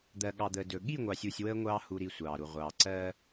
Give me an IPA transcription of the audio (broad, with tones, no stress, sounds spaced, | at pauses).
d̪ ɜ˨ ɠ ɑ˨ d̪ əː˨ d ɵ˨ ɠ i˦˨ ŋʷ ɑ˨ sʲ u˨ sʲ w əː˦ ŋʷ ɑː˦ h u˨ ɾ i˨ sʷ ɑː˨ ɾ u˨ ʁʷ ɑː˨ ǀ ɜ˦